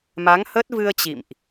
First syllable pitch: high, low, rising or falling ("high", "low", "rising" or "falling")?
rising